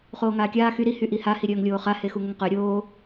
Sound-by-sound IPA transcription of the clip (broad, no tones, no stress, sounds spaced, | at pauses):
χ oː ŋ aː kʲ aː x y ɾ i h y ʔ i h a h i ɾʲ œː ŋ lʲ oː χ a h e x u ŋ ə ŋ q œ ɾʲ oː